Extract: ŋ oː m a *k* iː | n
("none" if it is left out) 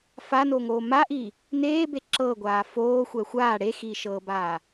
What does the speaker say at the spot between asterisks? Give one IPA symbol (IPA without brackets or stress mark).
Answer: ʔ